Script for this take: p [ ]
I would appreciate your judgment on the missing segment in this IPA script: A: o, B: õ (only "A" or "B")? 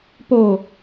A